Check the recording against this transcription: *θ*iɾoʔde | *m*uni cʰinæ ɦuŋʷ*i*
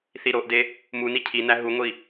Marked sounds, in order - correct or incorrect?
correct, correct, correct

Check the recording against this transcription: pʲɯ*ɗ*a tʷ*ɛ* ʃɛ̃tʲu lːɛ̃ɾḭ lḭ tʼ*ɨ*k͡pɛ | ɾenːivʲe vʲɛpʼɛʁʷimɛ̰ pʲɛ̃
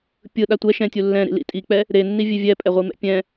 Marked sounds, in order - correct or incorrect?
correct, correct, incorrect

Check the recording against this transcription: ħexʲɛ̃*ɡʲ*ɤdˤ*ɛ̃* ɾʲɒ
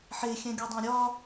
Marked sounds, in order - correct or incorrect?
correct, incorrect

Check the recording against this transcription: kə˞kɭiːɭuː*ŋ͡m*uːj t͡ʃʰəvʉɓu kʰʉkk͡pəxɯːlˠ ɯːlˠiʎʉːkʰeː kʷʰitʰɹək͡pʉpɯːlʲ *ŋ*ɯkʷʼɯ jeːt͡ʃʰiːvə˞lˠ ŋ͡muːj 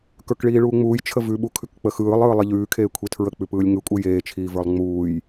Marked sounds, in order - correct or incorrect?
correct, correct

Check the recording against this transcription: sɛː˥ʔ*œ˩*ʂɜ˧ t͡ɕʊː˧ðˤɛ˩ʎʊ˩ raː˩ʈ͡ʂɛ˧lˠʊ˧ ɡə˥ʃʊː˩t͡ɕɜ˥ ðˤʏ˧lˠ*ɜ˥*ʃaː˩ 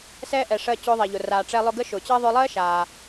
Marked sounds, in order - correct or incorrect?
incorrect, correct

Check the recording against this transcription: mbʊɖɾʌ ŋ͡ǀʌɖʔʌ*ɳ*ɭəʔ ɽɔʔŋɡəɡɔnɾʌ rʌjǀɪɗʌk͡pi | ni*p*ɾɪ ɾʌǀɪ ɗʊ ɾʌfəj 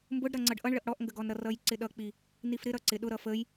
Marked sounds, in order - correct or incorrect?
correct, incorrect

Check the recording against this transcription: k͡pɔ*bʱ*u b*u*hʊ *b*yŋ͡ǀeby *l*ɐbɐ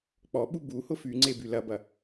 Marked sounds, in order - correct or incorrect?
incorrect, correct, incorrect, correct

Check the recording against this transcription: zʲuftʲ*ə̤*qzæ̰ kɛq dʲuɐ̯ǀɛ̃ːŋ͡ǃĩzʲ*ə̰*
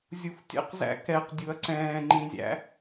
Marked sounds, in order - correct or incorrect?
incorrect, incorrect

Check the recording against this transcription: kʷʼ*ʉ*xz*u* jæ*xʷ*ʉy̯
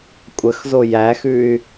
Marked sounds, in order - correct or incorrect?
incorrect, incorrect, incorrect

